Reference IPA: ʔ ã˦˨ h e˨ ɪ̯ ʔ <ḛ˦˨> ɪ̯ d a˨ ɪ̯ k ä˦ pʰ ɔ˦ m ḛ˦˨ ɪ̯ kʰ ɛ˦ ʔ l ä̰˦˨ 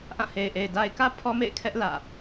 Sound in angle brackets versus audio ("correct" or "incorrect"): incorrect